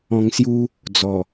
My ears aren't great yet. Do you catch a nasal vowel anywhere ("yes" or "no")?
yes